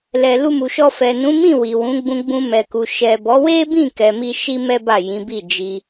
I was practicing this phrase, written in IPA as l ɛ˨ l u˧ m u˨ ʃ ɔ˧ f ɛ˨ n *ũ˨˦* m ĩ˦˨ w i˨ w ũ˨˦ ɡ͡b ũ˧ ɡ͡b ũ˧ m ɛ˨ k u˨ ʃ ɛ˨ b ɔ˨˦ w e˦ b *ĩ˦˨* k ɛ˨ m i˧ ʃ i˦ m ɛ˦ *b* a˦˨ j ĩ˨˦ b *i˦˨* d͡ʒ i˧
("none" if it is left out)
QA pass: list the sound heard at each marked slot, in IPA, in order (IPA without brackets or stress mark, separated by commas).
ũ˨˦, ĩ˦˨, b, i˦˨